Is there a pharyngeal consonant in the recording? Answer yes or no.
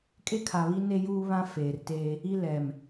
no